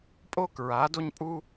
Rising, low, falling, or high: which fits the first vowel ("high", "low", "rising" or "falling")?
high